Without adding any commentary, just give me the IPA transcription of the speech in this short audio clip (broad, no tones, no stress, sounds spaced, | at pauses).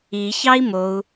i ç ɑ i̯ m o u̯